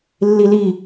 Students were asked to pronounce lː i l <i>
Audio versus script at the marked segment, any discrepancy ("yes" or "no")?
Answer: no